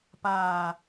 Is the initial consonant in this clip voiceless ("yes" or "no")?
yes